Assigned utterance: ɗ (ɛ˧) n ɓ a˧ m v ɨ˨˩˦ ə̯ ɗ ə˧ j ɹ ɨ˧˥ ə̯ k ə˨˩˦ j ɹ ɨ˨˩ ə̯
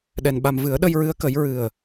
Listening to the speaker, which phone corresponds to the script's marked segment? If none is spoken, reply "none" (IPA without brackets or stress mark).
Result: ɛ˧